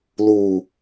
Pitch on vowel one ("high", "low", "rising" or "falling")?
low